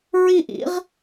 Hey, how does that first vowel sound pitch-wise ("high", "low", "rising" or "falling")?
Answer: falling